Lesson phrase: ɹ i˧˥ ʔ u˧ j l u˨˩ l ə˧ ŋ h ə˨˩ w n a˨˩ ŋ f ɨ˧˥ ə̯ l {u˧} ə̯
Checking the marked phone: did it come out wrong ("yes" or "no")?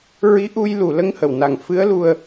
no